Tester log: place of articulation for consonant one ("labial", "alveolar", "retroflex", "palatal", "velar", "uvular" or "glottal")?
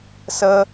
alveolar